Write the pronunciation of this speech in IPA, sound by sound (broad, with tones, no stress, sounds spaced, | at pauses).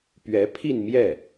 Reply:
p ɥ ɛ˧˥ pʰ i˥˧ n m j ɛ˥˩